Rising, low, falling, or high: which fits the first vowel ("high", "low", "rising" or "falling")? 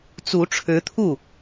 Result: rising